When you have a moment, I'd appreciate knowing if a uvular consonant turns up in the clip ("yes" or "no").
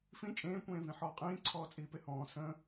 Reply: yes